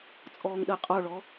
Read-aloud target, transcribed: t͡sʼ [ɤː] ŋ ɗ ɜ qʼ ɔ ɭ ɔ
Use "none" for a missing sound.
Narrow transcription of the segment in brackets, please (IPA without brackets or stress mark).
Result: ɔː